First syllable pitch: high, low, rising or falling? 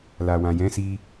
low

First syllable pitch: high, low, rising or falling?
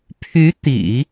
rising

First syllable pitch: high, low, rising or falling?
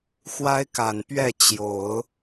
high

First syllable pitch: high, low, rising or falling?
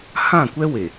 falling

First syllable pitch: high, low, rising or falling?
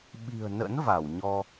low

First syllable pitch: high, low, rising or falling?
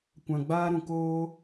low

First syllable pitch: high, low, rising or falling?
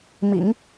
low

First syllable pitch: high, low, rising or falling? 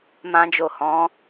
high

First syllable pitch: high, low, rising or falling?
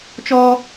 high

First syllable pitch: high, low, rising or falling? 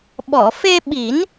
low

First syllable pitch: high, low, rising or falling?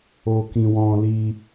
high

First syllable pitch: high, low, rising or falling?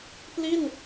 falling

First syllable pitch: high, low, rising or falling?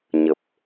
low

